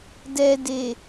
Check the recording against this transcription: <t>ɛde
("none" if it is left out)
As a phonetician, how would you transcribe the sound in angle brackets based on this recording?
d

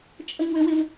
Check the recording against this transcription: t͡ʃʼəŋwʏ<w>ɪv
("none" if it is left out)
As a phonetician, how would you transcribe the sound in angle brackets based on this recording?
w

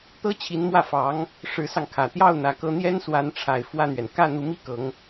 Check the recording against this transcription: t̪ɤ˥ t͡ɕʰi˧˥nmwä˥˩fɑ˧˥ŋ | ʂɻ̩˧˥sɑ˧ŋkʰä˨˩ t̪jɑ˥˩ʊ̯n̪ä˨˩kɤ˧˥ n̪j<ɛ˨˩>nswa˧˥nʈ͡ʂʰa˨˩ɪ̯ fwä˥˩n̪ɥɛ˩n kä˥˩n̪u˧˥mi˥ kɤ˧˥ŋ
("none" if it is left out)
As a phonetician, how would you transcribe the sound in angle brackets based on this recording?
ɛ˥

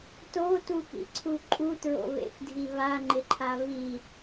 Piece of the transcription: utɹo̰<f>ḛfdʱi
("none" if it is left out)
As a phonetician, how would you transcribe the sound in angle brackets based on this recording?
β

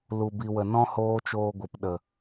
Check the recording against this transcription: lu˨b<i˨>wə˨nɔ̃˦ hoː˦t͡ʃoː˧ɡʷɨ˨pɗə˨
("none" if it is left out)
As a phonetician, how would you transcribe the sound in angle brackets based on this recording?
i˨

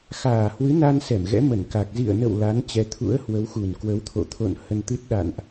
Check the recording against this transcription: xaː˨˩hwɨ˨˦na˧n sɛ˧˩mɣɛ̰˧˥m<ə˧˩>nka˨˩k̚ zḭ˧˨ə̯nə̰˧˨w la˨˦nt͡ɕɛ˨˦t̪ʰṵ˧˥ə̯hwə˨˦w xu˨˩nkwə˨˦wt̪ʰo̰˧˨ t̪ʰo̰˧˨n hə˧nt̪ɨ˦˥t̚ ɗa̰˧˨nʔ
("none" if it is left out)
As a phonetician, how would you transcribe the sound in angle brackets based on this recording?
ə˧˩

